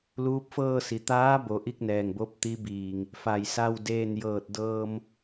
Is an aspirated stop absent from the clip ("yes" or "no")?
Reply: yes